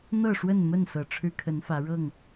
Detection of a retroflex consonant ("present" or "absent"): present